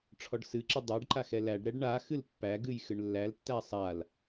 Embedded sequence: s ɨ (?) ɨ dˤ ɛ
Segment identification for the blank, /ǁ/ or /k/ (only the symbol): ǁ